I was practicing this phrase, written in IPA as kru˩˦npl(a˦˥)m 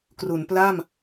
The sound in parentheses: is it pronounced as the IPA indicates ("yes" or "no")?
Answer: no